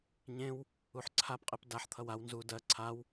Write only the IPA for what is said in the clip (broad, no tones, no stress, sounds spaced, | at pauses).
ɲ ẽ w | u ħ ǀʰ a p qʼ e p d a ħ t̪ʰ ʌ w a w n z u d ɜ ǀʰ a w